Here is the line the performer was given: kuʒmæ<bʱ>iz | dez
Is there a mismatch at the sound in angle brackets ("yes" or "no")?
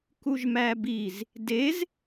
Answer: yes